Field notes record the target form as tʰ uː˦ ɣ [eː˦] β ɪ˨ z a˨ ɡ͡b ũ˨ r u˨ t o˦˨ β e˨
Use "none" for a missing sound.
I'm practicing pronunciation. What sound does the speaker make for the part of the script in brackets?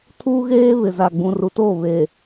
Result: eː˦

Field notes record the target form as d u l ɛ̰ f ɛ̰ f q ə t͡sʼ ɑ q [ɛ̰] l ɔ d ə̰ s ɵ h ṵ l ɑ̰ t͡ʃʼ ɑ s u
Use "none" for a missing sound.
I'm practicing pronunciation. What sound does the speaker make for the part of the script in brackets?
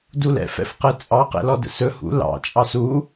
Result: ɛ̰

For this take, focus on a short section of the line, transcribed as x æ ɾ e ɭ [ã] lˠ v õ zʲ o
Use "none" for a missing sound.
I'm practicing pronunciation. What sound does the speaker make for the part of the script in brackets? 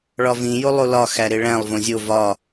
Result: æ̃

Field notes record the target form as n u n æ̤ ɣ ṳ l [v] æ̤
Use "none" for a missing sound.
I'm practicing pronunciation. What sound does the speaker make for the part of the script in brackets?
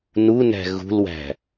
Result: w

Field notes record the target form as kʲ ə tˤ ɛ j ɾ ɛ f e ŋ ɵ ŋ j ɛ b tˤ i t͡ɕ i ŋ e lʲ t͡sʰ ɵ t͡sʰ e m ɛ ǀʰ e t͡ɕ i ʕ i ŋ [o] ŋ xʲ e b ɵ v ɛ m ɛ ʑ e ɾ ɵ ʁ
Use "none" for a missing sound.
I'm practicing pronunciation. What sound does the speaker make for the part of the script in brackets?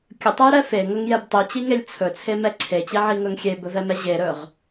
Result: ɵ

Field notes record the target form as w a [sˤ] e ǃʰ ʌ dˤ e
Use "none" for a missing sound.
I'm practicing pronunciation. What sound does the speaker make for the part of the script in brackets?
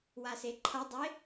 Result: s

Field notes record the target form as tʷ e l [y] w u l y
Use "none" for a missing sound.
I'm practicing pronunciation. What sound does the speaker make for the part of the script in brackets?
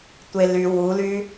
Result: y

